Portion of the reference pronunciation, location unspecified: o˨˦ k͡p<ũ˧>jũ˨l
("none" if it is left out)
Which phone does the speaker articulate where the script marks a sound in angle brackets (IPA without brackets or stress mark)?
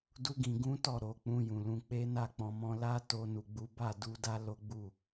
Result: ũ˧